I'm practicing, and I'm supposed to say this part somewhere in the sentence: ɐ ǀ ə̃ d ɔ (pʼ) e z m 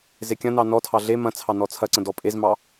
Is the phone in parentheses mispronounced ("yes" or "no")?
no